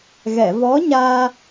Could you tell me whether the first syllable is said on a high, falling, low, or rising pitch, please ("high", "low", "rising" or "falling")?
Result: low